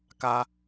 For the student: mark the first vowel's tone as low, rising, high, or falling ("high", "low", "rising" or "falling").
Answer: low